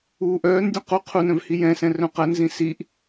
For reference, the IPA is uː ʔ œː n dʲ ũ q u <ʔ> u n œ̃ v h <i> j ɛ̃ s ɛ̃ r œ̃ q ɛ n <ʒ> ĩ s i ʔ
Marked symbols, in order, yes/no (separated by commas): no, yes, no